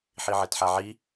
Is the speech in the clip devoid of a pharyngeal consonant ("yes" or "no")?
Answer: no